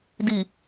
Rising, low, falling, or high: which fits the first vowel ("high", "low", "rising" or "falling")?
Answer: low